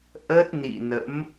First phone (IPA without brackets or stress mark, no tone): ʔ